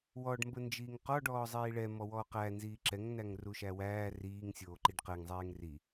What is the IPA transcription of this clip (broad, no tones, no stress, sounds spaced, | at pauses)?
w ɔ ɖ m b ə n d͡ʒ iː ŋ q ɔ ɖ ɔː zˤ iː ɭ ɛ m ɔ w ɔː q æ n z iː ǁ ɛ ŋ n æ ŋ r u ʃ æ w æː r iː ŋ sʲ oː ǃ i ɖ q ɛ ŋ zˤ ɛː ŋ r i